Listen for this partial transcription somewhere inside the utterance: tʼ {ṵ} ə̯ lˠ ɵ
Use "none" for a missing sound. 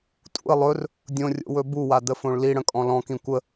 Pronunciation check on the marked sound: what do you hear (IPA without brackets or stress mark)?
ṵ